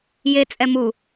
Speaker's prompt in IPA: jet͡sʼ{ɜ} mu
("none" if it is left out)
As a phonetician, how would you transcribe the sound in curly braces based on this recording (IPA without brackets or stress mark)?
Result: ɛ